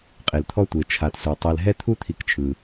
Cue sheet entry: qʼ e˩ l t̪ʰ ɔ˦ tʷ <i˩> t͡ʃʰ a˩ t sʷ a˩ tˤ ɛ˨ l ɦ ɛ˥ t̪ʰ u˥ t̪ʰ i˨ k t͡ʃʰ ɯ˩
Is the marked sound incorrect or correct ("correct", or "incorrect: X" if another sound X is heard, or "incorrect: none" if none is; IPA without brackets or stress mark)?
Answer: incorrect: e˩